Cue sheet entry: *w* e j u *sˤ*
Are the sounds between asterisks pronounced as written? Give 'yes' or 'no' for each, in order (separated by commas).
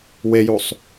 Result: yes, yes